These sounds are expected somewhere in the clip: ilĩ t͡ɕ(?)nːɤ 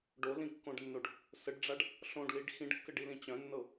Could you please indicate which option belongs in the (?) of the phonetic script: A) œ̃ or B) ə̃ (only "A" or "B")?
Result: A